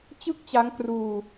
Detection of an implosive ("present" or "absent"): absent